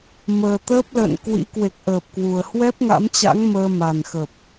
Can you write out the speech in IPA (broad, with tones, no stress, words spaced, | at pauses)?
məː˨˩t̪əː˦˥p̚lə̰ː˧˨nkwḭ˧˥ kwe˨˩k̚ʔəː˨˩p̚ kwu˨˩ə̯ hwɛ˦˥p̚ŋa̰˧˥mt͡ɕa̰˧˥ŋ məː˧ma˨˩nxə˨˩p̚